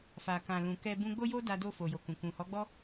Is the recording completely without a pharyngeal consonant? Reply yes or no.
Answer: yes